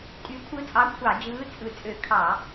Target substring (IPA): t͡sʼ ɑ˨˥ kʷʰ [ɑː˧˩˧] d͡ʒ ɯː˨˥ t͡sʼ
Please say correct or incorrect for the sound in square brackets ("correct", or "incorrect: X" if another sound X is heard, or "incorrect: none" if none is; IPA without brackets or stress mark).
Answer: incorrect: ɑ˧˩˧